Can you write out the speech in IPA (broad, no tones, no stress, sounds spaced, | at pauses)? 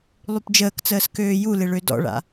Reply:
lˠ y p d͡ʒ əː k t͡s əː s k øː j u l ɪ ɭ ø d ɔ̰ ɭ a̰